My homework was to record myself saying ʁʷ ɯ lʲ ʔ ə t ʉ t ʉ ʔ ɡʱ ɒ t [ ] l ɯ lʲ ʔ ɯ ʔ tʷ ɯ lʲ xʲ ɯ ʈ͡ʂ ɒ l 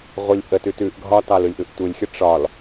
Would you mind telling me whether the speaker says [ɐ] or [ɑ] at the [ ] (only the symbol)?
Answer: ɑ